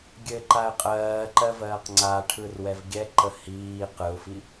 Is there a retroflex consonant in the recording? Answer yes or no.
yes